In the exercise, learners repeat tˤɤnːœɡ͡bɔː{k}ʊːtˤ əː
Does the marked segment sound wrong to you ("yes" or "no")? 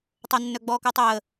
no